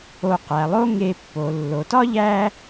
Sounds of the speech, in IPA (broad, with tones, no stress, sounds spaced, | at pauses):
o˨ q æ˩ lˠ o˦ ŋ e˨ pː o˩ lː o˩ t ɒ˥ ʎ æ˦